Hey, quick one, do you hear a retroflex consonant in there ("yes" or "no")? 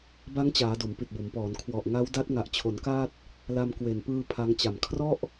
no